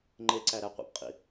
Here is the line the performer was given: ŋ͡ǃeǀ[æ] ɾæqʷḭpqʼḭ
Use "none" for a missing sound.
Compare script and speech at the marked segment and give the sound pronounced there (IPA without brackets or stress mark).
æ